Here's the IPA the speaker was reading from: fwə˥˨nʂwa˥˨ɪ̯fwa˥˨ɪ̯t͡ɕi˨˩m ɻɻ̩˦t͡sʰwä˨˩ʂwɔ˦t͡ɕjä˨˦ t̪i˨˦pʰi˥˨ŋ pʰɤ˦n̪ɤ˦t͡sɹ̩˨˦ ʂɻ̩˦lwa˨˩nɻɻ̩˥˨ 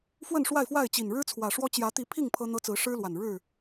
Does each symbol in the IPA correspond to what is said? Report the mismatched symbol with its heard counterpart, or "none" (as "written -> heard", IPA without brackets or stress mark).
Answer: m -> n